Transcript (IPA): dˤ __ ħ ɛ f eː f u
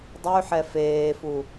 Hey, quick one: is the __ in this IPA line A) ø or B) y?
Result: B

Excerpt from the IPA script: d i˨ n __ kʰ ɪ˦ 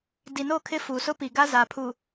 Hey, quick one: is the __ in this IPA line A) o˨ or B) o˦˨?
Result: B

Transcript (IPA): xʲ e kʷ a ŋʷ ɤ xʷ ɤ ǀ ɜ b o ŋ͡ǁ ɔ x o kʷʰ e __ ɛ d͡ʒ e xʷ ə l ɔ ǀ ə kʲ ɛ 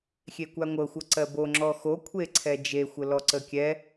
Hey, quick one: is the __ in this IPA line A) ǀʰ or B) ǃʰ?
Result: A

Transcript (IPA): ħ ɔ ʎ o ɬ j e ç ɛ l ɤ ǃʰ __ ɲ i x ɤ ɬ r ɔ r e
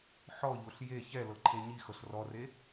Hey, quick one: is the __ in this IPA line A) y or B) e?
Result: B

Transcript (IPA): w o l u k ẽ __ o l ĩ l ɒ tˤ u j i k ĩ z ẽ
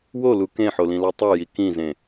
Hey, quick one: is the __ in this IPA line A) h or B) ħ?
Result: B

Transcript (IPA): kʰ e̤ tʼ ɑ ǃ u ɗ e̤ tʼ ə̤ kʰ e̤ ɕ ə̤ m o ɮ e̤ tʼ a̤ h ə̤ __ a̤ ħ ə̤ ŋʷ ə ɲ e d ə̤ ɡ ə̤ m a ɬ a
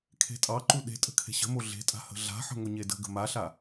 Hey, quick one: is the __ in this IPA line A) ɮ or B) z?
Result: A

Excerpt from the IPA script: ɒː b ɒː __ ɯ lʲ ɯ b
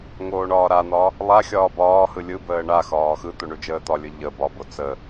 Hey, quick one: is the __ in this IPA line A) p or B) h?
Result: B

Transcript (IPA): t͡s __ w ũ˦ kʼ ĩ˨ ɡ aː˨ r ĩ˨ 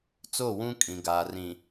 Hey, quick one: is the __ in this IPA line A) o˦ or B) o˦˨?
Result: B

